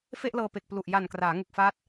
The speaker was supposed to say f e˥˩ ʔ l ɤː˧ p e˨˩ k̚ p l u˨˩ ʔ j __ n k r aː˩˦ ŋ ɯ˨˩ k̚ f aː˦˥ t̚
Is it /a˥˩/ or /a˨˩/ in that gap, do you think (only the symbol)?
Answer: a˨˩